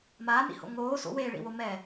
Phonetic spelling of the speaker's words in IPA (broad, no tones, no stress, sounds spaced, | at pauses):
m aː n ḭ h o̰ ŋ oː s o̰ w eː ɭ ḭ w o m ɛ